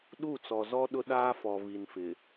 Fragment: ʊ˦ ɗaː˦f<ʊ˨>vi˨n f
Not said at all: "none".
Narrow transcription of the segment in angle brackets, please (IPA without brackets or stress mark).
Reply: ɔ˨